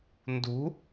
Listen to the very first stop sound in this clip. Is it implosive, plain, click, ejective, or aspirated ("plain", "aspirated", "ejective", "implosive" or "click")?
plain